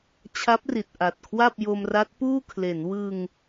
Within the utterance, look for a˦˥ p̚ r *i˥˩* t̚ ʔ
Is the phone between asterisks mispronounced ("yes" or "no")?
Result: yes